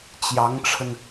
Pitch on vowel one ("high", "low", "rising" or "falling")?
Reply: rising